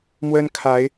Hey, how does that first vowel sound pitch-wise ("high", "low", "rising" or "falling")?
high